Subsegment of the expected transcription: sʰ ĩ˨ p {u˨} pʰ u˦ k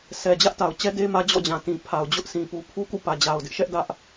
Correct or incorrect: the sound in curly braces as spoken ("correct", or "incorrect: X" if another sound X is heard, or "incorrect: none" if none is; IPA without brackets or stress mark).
correct